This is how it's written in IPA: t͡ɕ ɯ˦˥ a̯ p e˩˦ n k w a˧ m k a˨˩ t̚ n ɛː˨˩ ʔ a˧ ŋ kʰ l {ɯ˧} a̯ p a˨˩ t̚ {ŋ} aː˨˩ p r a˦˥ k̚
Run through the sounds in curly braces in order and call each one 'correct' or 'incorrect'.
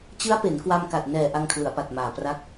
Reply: incorrect: ɯ˩˦, incorrect: m

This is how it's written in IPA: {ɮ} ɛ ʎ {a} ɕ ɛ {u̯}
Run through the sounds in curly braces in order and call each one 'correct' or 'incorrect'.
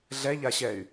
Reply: correct, correct, incorrect: y̯

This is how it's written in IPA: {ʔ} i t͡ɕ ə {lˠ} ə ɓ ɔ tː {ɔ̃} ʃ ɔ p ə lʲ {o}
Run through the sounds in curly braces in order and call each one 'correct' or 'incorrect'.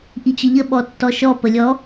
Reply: correct, incorrect: ʎ, incorrect: ɔ, incorrect: ɔ

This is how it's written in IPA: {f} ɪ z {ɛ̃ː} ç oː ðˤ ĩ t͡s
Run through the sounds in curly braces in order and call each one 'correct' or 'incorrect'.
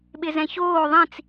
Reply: incorrect: ɓ, incorrect: ɛ̃

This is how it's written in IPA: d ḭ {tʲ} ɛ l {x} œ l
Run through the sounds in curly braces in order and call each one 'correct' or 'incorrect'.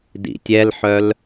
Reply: correct, incorrect: ħ

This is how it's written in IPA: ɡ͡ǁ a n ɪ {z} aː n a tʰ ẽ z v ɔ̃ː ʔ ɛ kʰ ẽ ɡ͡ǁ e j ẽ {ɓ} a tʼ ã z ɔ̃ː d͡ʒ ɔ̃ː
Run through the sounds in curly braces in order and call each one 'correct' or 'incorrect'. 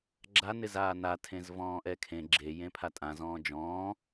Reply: correct, incorrect: pʰ

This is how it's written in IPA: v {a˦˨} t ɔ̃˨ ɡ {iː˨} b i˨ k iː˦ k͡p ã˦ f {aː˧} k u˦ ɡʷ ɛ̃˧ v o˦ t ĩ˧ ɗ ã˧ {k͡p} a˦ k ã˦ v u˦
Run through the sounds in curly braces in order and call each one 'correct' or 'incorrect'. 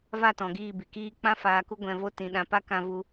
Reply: correct, incorrect: iː˦˨, correct, incorrect: p

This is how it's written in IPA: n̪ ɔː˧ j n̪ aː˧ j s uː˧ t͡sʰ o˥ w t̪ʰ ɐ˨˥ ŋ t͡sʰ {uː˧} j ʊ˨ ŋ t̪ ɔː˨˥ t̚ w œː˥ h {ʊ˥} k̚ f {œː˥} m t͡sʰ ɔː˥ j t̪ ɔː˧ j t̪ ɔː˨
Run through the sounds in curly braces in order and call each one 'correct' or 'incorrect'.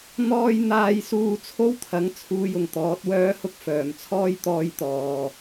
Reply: correct, correct, incorrect: œː˨˩

